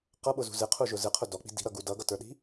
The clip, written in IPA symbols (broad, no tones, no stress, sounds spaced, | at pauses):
q ʌ ɓ ʊ z ṳ z ɪ qʰ u ʒ ʊ z ɪ qʰ ʊ d ɔ k͡p i̤ d i̤ ɾ ʌ ɡ u d ʌ ɡ ʌ t ə˞ ɗ i̤